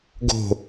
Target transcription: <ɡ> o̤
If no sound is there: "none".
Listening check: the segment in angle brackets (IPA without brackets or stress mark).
ɡ